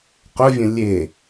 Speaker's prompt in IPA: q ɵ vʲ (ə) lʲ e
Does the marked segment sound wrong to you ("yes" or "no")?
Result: yes